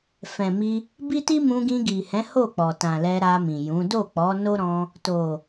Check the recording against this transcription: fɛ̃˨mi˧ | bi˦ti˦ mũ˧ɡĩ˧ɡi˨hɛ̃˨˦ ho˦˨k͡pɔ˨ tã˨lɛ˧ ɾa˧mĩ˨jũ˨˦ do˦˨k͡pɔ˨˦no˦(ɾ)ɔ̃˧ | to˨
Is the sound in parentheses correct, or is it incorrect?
correct